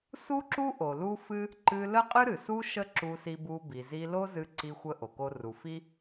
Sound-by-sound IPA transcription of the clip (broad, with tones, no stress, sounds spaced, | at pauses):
s u˥ ǁ u˥ ʔ o˩ l u˥ f ɨ˥ | ǃ ɨ˧ l ə˥ qʼ ɨ˥ ɾ ɨ˩ s u˥ ʃ ə˥ ǁ u˧ s i˧ b u˧ b i˩ z i˧ l o˥ z ɨ˧ ǀ i˧ xʷ ə˧ ʔ o˩ k o˧ r u˩ f i˥